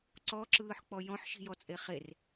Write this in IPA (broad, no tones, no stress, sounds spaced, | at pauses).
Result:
ǀ ɔ ǁ ɯː ħ k͡p ɔ j ɔ̃ ħ ʃ i̤ j ɔ t͡sʼ e χ e r